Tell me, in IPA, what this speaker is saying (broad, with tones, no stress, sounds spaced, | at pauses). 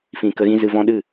f ĩ˨ k ə˧ ɣ ĩ˦ z ɨ˧ v ɔ̃˧ ɗ ɨ˦˨